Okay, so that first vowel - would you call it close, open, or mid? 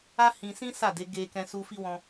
open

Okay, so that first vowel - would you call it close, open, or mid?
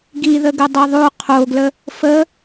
close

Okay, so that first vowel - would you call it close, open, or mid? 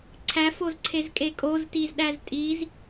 open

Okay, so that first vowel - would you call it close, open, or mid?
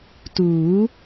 close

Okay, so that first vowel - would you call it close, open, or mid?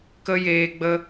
mid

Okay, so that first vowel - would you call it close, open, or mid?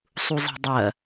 close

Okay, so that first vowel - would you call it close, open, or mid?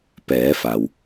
mid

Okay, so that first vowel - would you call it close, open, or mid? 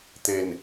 mid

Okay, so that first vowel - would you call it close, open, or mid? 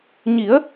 close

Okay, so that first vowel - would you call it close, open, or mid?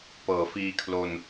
mid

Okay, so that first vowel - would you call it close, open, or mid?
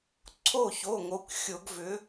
mid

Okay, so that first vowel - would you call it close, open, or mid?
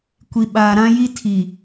close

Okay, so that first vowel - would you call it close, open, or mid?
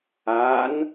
open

